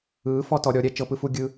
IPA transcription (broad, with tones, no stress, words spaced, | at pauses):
ɯː˩˥ fɔ˧tɔ˧ɾʲɔ˩˥ɾʲɛ˧ t͡ʃɤ˧pɯ˧fu˧ ɡʲɯ˧